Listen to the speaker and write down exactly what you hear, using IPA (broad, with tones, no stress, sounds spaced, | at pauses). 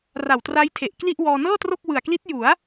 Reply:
r a˨˩ w t r a˦˥ j tʰ e˨˩ ʔ k l i˥˩ ʔ w ɔː˧ n ɤː˥˩ t r o˥˩ k̚ w ɯ˨˩ a̯ k l i˦˥ t̚ j u˩˦ a̯